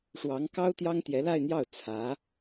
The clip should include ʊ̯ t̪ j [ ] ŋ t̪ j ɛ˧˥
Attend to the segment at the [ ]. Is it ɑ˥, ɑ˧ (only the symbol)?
ɑ˥